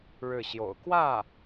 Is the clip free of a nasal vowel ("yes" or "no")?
yes